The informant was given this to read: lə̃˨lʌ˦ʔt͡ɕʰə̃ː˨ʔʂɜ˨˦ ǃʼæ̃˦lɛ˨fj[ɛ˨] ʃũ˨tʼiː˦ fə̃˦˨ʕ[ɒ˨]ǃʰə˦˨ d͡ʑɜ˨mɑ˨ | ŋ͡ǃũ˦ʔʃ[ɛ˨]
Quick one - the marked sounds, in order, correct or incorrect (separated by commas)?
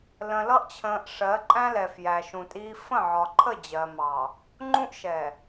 incorrect, correct, correct